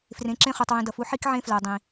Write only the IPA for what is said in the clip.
frẽ˨ǁẽ˦χu˨tˤ wĩ˨dʌ˨fu˦ħi˦k ʕẽ˦flɜ˨ dˤĩ˨

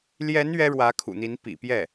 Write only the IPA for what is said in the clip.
ljɛ˧˥n ɥɛ˥ɻwä˧˥kʰṵ˨˩n̪i˧˥n pḭ˨˩pjɛ˥˩

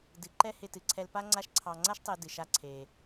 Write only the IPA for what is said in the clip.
dɨ˩ ǃɛ˥hɪ˧tɨ˩ ǀʰɛ˧lpa˥ ŋ͡ǀa˥ʃǀʰɑ˧ ŋ͡ǀa˥ʃtˤe˧ dɨ˩ʃa˧ǀʰe˩

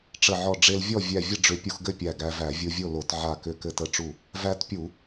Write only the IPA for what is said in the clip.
ʈ͡ʂə˧˩ʕɔ˧˩ ɖ͡ʐe˧lvʲɔ˥˨ vʲæ˧˩vʲə˥˨ɖ͡ʐʏ˧˩˧ pʲu˧xɡɘ˥˨pʲæ˧˩ ɡæ˧væ˧˩˧ vʲu˧vʲo˥˨lo˧˩˧t ʕa˧˩kʏ˧˩ kɘ˧˩tə˧˩ʈ͡ʂu˧˩ | væ˧tpʲu˧˩˧

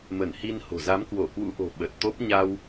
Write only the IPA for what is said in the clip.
mə˧˩nhi˧nho̤˨˩ za˨˦mkwo˧˩kwṵ˧˥ʔo̤˨˩ ɓə˨˩t̚t̪o˦˥p̚ ɲa˧w

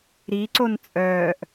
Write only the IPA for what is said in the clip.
ɾiǀon t͡sʼœːʔ

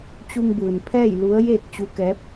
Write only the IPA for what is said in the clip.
t͡ɕu˧ŋbɯː˩npʰɛː˥˨j lu˧˥ə̯jeː˥˨k̚ t͡ɕu˧˥kɛː˧˥p̚

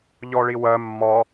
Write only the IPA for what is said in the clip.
ʎɔɭiwɜ mːɒ

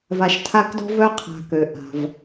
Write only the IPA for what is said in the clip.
va˨ʃtʰa˦kdɔ̤˥ vœ˥ qʰa̤˨kø˩ʔa̤˩v

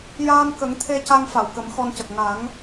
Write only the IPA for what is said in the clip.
jaː˧nkə˨˩˦ŋt̪ʰe˧ ca˧ŋfa˨˩˨wkə˨˩˦m xɔ˧ncə˨˩k̚ ŋa˨˩˦ŋ

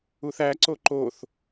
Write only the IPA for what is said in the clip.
uθæǀo ǃoθ

